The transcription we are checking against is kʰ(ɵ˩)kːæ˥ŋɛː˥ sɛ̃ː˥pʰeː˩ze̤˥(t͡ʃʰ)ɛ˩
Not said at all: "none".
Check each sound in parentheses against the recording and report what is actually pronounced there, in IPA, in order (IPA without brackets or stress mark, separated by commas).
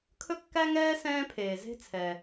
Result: ɵ˥, t͡sʰ